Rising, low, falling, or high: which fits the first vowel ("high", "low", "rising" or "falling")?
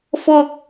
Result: high